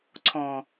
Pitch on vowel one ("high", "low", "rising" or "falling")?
low